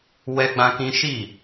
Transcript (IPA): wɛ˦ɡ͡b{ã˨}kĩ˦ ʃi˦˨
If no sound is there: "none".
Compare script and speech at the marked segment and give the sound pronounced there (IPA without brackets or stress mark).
ã˦